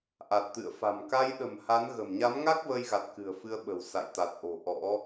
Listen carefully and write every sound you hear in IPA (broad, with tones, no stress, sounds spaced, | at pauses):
ʔ a˨˩ t̚ t̪ ɨ̰˧˨ ə̯ f a̤˨˩ m k a˧ j ɗ ə̤˨˩ m h a˨˦ n ɣ ə̤˨˩ m ɲ a˨˦ m ŋ a˦˥ k̚ v ə˧ j ɣ a˨˩ t̚ k ɨ̤˨˩ ə̯ f ɨ˧ ə̯ ɓ ə̤˨˩ w s a̰˧˨ j t̪ a˨˩ t̚ ʔ o̤˨˩ ʔ ɔ̰˧˥